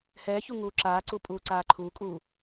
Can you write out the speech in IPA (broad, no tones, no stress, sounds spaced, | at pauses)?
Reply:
h ɛː ç u ŋ uː ǁ aː ǀ u pʼ uː ǀ aː ǃʰ uː kʼ uː